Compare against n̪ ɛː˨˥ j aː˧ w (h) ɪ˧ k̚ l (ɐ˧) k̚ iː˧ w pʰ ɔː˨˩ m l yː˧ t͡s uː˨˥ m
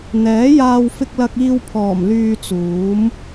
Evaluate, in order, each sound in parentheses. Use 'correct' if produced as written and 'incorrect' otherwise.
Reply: incorrect, correct

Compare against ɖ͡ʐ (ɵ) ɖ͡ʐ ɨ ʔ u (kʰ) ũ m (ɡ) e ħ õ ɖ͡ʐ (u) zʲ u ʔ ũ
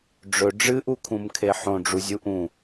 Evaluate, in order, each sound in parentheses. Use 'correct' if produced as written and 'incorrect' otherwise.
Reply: correct, correct, incorrect, correct

